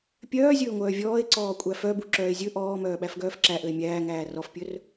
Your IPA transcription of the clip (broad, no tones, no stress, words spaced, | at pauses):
pʲœːzʲɵːŋʷœː vʲɔːe̯ǀɔː kʷʼæfœbu ǁœːe̯zʲɵ ʔɔː mœːɓæfɡœːfǁæ ʔøe̯mʲæːŋæː rɔfpʲɵr